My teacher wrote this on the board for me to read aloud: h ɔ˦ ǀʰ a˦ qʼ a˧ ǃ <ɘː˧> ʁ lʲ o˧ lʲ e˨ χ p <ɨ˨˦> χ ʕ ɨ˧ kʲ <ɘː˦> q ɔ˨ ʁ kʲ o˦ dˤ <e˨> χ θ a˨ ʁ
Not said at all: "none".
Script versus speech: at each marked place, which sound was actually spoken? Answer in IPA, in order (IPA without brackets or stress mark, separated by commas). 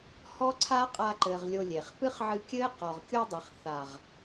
ɘː˨, ɨ˦, ɘː˦, e˨